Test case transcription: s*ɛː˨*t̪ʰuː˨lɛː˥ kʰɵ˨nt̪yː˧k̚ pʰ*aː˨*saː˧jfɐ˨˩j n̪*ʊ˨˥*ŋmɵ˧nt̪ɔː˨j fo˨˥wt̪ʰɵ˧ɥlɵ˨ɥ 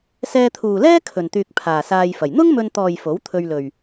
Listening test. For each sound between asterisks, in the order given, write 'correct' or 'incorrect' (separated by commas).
incorrect, correct, incorrect